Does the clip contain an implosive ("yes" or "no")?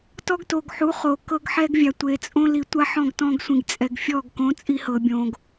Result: no